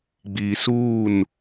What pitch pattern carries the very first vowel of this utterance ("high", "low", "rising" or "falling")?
low